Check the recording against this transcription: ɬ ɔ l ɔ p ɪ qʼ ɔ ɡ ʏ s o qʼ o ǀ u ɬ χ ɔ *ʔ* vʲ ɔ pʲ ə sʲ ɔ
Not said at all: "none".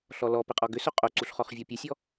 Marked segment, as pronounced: χ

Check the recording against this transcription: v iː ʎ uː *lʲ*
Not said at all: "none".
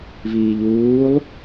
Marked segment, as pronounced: lˠ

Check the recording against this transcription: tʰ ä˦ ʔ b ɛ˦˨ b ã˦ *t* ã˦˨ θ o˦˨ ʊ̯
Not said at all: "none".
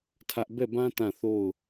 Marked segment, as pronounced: t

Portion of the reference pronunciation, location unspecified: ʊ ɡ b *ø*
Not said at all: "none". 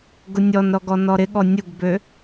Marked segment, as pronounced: ø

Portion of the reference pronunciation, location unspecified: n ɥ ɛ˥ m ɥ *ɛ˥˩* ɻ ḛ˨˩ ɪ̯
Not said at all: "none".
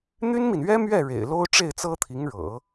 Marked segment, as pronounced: ɛ˥˩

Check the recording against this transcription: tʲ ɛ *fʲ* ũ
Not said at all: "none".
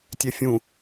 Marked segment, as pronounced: fʲ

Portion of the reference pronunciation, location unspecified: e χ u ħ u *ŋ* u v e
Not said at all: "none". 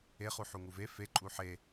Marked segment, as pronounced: ŋ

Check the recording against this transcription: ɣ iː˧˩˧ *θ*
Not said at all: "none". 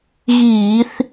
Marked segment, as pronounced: θ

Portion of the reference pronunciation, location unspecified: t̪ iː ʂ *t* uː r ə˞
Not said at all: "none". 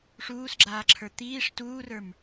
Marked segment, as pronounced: t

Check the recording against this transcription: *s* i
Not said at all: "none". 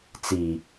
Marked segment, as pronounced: t͡s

